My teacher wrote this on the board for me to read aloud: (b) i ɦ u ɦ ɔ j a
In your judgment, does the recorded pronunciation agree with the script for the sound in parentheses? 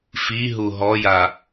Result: no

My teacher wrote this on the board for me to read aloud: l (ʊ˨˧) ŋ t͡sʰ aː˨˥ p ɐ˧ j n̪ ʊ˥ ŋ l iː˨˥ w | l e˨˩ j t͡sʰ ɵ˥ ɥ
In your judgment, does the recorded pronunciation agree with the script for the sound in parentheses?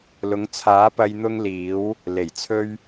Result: yes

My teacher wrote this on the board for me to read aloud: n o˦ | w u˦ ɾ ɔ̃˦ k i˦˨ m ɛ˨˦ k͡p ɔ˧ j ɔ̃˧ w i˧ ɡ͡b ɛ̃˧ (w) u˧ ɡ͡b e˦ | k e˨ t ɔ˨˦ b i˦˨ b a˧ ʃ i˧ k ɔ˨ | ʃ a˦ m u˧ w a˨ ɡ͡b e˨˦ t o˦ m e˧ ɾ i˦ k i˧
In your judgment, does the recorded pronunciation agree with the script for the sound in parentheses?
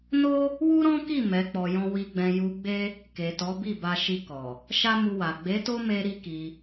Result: no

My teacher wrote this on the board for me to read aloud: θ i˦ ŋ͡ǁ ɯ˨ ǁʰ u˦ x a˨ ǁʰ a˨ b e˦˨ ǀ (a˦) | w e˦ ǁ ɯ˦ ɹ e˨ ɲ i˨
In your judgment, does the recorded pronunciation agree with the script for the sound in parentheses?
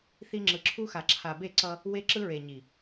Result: no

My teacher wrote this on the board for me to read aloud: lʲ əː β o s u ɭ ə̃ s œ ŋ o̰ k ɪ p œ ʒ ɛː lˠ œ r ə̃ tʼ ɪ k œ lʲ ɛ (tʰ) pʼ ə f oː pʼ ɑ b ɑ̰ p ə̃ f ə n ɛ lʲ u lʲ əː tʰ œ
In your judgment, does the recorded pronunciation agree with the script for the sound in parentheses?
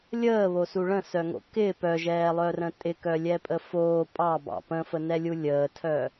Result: no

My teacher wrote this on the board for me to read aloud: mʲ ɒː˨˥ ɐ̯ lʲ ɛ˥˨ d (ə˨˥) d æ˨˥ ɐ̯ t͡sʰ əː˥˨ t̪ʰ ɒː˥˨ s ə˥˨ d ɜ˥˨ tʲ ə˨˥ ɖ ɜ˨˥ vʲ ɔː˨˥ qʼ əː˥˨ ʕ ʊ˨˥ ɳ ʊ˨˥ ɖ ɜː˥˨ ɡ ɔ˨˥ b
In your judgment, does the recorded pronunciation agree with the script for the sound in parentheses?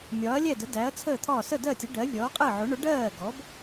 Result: yes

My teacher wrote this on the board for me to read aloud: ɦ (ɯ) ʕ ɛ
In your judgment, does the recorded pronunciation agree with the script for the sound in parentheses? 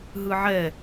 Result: yes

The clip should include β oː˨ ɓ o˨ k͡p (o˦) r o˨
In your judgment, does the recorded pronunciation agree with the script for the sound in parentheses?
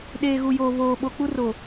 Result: no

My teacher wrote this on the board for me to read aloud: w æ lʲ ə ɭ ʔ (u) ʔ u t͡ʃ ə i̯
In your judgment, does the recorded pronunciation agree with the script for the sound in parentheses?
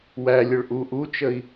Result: yes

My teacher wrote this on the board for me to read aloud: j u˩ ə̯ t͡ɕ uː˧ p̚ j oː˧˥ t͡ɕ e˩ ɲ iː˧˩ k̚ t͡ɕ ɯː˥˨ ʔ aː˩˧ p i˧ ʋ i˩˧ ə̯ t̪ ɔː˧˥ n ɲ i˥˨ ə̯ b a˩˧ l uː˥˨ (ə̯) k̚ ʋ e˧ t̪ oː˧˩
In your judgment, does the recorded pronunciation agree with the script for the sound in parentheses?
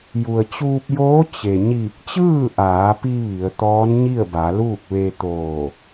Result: no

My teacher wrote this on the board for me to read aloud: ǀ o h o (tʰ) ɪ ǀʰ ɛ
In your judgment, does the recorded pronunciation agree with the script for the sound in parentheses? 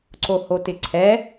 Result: no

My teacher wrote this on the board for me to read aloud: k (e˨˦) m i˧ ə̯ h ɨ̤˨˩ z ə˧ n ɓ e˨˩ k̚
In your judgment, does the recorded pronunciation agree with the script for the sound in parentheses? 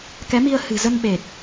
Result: no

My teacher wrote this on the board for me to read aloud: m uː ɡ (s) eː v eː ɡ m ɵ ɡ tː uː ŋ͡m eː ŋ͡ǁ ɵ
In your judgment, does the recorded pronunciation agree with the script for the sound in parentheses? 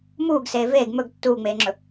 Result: yes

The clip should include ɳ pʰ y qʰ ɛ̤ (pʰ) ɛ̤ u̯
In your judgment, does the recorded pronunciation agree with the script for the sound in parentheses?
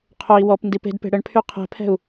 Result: yes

